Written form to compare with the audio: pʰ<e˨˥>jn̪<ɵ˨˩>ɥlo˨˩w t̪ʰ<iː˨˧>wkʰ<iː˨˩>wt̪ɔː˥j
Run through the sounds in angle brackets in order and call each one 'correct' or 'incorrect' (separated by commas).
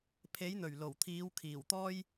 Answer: correct, correct, correct, correct